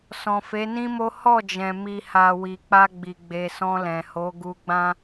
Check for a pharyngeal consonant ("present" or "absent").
absent